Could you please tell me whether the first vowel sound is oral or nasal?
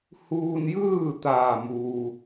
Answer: oral